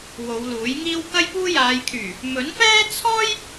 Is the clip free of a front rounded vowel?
no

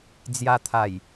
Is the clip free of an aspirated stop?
no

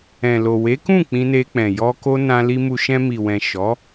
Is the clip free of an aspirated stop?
yes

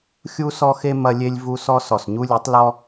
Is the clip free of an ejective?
yes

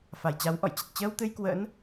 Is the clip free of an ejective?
yes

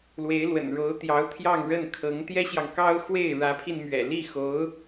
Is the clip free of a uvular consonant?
yes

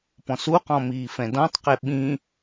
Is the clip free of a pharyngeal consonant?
yes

